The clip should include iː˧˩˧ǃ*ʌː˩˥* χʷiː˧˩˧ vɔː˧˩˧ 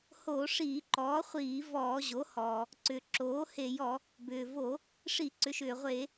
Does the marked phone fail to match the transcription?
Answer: yes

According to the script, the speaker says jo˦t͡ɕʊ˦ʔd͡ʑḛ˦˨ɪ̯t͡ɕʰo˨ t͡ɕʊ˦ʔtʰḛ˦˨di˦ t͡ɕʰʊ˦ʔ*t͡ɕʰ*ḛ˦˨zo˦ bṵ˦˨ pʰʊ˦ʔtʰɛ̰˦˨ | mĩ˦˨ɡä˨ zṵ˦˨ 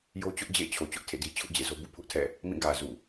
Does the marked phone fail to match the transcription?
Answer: yes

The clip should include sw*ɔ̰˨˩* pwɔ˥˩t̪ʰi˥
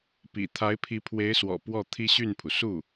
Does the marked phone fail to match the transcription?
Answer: no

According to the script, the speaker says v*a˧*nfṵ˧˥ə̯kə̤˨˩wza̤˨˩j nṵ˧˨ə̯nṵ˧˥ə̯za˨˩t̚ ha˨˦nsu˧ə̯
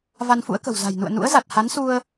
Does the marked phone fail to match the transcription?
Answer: no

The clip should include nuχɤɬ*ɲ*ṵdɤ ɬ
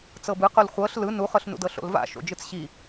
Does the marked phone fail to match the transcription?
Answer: yes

